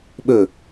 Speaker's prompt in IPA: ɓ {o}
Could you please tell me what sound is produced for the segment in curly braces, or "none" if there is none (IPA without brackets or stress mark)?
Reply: ɵ